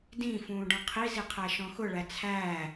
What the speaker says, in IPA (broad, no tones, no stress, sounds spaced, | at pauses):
d ĩ f ũː ɖ ɔ̃ qʰ i z i qʰ æ ʃ ɔ̃ x ʊ ɭ æ t͡sʰ æː